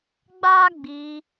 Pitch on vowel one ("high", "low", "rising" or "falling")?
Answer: high